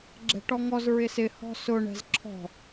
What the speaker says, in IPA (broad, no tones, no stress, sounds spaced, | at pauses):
ɡ͡ǁ ɛ̤ ʈ ɔ ŋ ɔ z ɹ ɪ s ɪ h ɔ̤ s ʊ ɳ ɛ̤ z ǁʰ ɔ̤